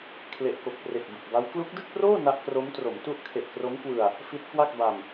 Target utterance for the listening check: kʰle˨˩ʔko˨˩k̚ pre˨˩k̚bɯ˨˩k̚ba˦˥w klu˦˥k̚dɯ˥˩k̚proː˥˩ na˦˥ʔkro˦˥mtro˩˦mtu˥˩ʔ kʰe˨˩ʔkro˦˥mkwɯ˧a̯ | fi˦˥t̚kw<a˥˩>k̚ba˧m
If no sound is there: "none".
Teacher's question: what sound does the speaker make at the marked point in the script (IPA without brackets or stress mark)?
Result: a˥˩